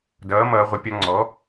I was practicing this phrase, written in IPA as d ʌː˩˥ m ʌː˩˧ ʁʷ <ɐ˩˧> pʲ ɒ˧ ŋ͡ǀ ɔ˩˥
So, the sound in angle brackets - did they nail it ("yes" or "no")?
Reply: no